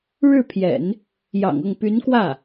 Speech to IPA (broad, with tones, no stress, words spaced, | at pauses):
ɻɻ̩˥˩pʰjɛ̰˨˩˦n | jɑ̰˨˩ŋɤ˥˩ŋ py˧˥nkwä˥˩